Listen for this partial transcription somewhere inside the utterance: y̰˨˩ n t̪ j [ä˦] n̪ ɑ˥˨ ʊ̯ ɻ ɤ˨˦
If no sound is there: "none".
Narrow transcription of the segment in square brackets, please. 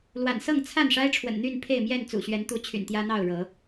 ä˦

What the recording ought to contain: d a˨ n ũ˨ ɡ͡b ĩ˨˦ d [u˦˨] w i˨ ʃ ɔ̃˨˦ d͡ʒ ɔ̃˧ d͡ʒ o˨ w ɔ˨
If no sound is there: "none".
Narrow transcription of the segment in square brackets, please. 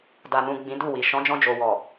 u˦˨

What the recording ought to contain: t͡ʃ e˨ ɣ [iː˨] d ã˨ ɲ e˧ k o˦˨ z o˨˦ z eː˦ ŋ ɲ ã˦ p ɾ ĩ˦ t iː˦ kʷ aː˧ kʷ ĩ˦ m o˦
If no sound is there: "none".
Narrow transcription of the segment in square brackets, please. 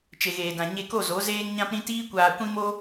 eː˨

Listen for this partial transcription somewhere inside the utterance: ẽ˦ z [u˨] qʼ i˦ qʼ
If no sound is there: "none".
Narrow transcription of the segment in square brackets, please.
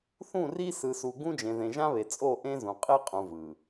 ũ˨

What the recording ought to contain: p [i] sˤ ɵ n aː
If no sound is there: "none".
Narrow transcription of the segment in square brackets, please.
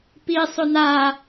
i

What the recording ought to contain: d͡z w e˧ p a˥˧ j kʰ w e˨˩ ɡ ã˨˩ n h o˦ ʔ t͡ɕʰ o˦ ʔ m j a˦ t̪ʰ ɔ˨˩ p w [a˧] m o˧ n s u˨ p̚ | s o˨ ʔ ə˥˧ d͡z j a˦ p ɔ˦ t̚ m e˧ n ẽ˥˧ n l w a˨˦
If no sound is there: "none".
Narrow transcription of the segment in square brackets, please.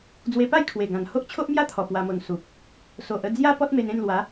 a˧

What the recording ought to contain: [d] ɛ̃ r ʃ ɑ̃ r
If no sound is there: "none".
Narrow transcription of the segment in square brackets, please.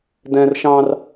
d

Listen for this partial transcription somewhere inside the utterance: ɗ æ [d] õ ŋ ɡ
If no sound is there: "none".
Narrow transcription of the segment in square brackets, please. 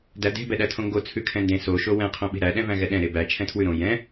tʰ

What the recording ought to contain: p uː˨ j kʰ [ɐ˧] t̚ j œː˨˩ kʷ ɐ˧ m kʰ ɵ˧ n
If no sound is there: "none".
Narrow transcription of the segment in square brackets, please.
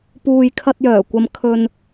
ɐ˧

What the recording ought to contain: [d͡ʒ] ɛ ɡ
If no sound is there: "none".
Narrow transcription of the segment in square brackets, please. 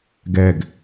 ɡ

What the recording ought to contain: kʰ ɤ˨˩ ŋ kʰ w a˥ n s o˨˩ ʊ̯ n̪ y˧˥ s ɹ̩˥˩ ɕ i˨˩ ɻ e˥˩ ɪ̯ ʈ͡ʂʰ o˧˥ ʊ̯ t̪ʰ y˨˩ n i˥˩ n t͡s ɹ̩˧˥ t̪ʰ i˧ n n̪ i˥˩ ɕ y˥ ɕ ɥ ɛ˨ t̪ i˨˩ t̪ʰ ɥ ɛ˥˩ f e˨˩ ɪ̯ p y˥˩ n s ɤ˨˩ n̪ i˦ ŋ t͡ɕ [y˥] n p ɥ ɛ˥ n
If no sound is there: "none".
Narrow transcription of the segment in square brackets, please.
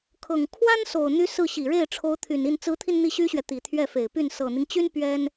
y˥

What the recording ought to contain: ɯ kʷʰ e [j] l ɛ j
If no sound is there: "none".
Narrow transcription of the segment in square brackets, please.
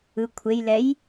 j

